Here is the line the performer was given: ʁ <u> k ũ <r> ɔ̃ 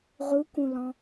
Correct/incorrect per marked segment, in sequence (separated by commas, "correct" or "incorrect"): correct, incorrect